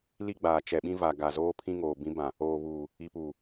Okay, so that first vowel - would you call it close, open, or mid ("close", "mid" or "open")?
close